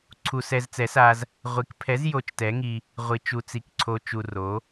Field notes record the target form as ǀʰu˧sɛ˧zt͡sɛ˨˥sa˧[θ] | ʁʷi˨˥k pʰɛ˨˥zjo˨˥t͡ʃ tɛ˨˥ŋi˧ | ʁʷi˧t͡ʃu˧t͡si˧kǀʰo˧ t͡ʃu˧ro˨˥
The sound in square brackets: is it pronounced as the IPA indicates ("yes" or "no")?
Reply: no